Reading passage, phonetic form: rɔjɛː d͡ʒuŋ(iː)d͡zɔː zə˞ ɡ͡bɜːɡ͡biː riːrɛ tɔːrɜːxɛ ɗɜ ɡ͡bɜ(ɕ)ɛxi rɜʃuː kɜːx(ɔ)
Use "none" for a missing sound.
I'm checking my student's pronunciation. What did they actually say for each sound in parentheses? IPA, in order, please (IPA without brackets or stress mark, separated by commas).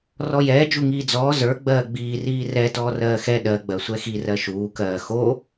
iː, sʷ, o